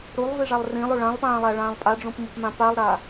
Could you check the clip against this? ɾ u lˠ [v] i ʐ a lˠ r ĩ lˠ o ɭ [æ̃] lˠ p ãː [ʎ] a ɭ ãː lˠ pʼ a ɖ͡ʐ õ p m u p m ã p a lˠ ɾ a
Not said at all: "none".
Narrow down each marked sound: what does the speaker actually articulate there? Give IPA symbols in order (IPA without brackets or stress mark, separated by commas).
v, ã, lˠ